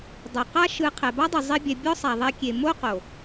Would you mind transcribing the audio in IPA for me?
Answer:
dˤ ɤ˨ q a˦ ʃ ɯ˧ qʰ ɛ˨ b a˦ dˤ ɯ˨ zˤ i˦ bʲ ɛ˧ bʲ ɔ˦ sˤ a˨ ðˤ ɛ˧ kʲ e˨ m o˦ q o˨

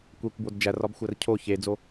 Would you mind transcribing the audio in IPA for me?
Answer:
kʷ e kʷ b o d d͡ʒ æ r ɒ b xʷ æ r cʰ o ç e d͡z o

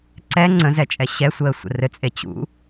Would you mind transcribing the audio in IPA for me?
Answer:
ǀ ɛ ŋ͡ǀ ə̃ z ɛ t͡ʃʼ ɛ ɕ ɛ sʷ əː sʷ ə̰ r ɘ t͡sʼ e t͡ɕ ṵ

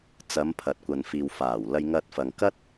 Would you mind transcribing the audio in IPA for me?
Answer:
t͡s ɐ˨˧ m pʰ ɐ˨ t̚ kʷ ɐ˨ n f iː˨ w f aː˨˩ w l ɐ˧ j ŋ ɐ˧ t̚ f ɐ˨ ŋ k ɐ˥ t̚

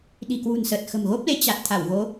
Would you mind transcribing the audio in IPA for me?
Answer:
ɗ i̤˨˩ k w ṳ˨˩ n s əː˨˩ t̚ x ə̤˨˩ m ɣ o˦˥ p̚ l e˨˦ t͡ɕ a˨˩ t̚ t̪ʰ a˧˩ w ɣ o˨˦

